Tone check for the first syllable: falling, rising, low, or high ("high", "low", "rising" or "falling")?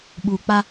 low